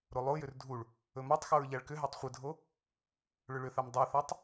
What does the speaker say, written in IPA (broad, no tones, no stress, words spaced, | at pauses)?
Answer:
ɾolˠojʏr dʱuɭ | ɵmɔtˤxoɹ ʎaɭkʏɦatˤ χʷɪdʱo | ɭʏɭʏθam dˤoθatˤ